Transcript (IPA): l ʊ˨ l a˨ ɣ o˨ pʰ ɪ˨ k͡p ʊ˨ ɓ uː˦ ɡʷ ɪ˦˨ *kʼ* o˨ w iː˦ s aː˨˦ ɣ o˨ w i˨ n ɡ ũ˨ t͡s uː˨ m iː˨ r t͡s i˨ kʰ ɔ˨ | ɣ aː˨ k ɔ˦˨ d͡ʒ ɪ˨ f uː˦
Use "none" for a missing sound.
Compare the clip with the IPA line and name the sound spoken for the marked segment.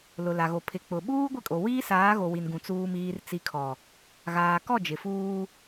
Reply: kʼ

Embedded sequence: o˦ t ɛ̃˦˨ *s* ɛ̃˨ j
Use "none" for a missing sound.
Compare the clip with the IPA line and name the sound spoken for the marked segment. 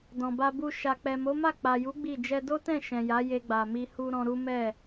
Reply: ʃ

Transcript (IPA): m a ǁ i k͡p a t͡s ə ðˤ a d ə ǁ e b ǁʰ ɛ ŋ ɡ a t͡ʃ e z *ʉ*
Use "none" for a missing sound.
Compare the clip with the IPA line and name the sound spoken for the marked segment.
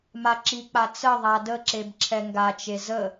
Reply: ə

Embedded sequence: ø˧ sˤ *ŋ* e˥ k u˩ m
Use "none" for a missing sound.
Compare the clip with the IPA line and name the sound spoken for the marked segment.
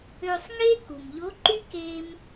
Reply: ŋ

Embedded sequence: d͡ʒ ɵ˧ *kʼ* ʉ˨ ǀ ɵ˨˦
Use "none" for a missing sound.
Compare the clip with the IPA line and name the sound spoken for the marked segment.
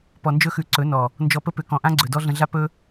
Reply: x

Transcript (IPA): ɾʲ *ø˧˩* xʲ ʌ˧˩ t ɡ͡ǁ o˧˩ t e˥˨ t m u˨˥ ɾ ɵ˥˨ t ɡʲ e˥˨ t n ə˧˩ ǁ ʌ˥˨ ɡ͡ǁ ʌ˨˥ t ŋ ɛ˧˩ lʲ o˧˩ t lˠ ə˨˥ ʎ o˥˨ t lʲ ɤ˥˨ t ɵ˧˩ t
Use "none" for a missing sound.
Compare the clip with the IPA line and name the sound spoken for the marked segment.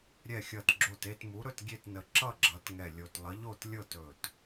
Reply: ɛ˧˩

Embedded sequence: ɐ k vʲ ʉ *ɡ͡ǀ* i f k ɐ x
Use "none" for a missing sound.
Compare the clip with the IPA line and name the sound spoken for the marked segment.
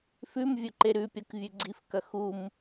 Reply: ɡ͡ǀ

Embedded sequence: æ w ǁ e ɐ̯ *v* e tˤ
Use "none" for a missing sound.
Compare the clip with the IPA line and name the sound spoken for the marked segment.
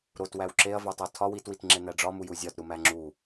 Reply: v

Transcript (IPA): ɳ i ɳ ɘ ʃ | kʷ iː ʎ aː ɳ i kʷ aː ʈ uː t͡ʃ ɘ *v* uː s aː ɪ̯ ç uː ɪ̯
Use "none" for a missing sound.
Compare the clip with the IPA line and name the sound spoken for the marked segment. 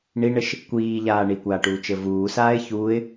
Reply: v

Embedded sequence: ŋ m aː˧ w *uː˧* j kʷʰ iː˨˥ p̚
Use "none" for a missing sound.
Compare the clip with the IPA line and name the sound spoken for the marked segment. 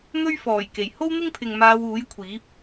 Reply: uː˨˥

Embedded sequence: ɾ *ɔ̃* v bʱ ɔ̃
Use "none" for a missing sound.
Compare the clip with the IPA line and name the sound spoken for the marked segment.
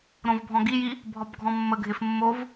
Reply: õ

